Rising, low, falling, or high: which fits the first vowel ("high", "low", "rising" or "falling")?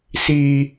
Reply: low